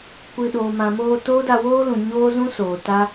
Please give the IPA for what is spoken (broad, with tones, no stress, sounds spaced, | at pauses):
kʷ ɨ˨ ɗ oː˨ m ã˨ m oː˧ t oː˦ d a˧ w oː˦ l ũ˨ ɲ oː˦ z ũ˦ s oː˨ t a˦